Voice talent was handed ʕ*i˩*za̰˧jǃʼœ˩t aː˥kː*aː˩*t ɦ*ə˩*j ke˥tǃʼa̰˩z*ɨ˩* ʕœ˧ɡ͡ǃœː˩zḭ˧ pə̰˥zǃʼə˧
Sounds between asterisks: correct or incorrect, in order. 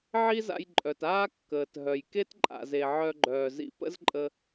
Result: incorrect: i˥, incorrect: əː˩, incorrect: œ˩, incorrect: e˩

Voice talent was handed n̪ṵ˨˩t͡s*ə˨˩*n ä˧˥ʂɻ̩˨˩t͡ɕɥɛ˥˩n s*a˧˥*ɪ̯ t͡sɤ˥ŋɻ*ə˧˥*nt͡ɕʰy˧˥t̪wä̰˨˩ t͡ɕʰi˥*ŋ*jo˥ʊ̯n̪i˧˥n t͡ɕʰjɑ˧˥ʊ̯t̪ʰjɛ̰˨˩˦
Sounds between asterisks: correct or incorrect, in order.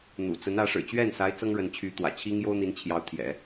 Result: incorrect: ə˧˥, correct, correct, correct

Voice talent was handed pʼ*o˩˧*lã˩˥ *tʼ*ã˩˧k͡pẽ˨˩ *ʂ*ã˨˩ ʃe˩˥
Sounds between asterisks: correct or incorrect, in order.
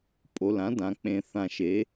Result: correct, incorrect: d, incorrect: θ

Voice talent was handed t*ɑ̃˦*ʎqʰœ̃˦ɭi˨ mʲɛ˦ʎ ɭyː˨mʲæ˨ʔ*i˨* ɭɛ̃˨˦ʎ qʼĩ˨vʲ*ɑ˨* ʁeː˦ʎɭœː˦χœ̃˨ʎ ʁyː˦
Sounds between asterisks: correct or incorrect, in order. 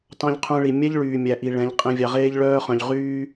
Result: correct, correct, correct

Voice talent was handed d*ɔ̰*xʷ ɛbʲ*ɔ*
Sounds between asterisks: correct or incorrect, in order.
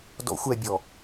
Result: correct, correct

